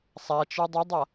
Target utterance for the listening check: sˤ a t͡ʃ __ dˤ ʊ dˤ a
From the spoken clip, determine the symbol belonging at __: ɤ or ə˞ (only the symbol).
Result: ə˞